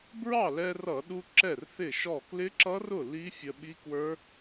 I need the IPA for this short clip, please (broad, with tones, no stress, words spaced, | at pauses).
bɹɑ˥˩lɛ˧rʌ˧˩˧ɗu˧ ǁɛ˥˩rθɪ˥˩ʃɔ˥˩ klɪ˦˥ǁʌ˦˥rʊ˥˩ li˦˥fʲə˧ ɓi˦˥kwə˞˦˥